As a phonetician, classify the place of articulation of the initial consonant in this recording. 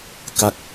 velar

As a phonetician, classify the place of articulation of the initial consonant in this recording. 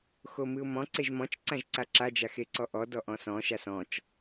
velar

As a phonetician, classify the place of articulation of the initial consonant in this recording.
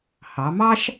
glottal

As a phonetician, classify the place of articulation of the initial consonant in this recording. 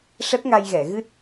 retroflex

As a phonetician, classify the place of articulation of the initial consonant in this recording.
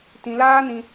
alveolar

